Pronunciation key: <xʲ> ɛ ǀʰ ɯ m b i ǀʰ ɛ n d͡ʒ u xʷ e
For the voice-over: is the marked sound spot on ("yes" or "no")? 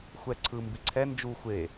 no